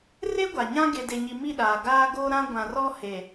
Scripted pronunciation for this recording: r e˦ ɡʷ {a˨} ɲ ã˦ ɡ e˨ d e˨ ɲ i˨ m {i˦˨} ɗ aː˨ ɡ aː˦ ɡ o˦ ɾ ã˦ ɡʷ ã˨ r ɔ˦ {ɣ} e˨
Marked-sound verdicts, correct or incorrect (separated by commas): correct, correct, incorrect